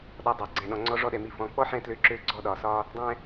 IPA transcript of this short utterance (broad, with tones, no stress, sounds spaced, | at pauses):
ɗ ɔ˨ dˤ ɛ˩ ɡ͡ǀ ɛ̃˨ ɗ ɔ̃˨ ŋ͡ǀ ɔ˦ ʐ ɔ˦ ɗ ɛ˨ m i˨ f ɔ̃˨ k͡p ɔ˥ ħ ɛ̃˦ t l ø˦ ǁ ø˥ ɡ͡ǀ ɔ˥ ɗ ɒ˨ s ɒ˦ | dˤ ɛ̃˦